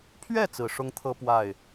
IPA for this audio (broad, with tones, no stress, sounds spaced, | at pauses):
pʰ ɥ ɛ˥˩ t͡s ɹ̩˨˩ ʂ ʊ˥ ŋ t̪ʰ ɤ˥ p w a˥˩ ɪ̯